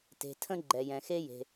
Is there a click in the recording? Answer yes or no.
yes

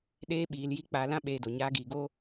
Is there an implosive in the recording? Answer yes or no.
yes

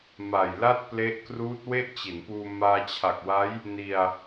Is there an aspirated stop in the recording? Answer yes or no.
yes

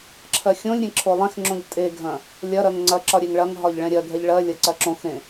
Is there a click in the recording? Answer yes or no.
yes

